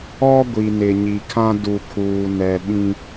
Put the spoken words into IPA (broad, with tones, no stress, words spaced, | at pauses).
ɔ˦ ɡʷi˨nɪ˨ɲi˨kʰã˦ du˨kʰuː˨ nɛ˨ ɓĩ˦